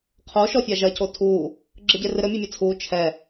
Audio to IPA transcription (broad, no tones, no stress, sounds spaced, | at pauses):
qʰ o ʃ ɔ fʲ a ʒ ɐ c o tʰ uː | ɡ͡ǁ ɘ ɟ e r ɨ ɾ ɘ mʲ ɨ mʲ ɘ t͡sʰ uː t͡ʃʰ ɛ